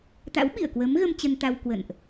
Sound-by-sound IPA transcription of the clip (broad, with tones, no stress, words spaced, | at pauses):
t̪a̰˧˥w ɓḭ˧˨ə̯kwə˨˦mɣə˧m t͡ɕə˧nt̪a˧w kwə̰˧˨nʔ